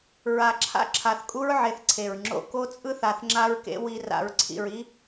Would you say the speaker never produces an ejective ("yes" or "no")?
no